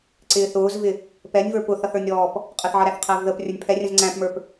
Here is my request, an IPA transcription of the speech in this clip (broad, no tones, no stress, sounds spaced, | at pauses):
ǀ ɪː θ ʊː z v ɪ | p ɛ nʲ v ə˞ p ʊ θ ʌ θ ə˞ nʲ ɾ ɔː p | qʼ ə θ ʕ ʌ ɾ æ θ qʰ æ v ð ə p rʲ ə˞ nʲ pʰ ɛ rʲ ə̃ z ŋ͡ǀ æ̃ p m ə˞ p